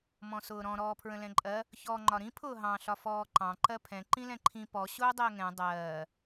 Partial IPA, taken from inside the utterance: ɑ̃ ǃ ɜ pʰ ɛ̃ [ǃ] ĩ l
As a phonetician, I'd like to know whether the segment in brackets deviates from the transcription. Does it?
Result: no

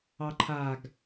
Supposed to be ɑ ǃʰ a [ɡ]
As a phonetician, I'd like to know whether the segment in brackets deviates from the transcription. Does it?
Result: no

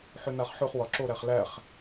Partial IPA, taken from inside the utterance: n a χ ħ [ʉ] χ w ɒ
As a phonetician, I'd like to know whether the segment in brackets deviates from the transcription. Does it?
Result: no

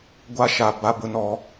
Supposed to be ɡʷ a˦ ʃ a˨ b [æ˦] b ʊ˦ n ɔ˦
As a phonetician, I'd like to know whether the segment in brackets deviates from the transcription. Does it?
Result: yes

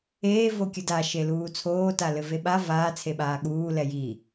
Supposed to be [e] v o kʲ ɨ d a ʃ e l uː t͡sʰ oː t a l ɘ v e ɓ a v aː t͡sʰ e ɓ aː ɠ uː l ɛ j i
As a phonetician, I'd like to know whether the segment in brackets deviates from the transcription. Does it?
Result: yes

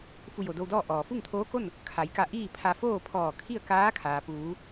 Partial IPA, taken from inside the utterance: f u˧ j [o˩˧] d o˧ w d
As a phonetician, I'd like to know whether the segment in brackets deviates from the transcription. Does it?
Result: yes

